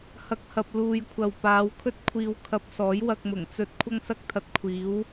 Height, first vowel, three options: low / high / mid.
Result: low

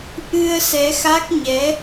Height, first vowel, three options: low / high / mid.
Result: high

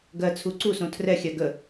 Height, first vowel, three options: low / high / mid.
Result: mid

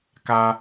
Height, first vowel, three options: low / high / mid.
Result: low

